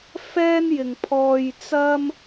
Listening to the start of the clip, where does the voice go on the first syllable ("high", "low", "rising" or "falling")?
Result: high